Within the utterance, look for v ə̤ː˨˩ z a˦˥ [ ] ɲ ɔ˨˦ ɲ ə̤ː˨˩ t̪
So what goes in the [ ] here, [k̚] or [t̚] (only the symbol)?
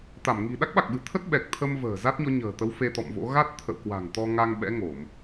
t̚